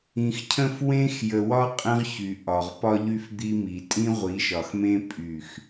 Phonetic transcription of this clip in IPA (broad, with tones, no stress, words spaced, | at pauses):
ĩ˨xcʰə̃˦f wẽ˦x jə˨wɒ˦ qʼə̃˦ʁçy˨ ʔɒ˨ʁpɒ˦ʎy˦f d̪i˦mi˨ tʼĩ˦ʁʷi˨˦ʃɒ˨xmẽ˦ pʼy˦˨x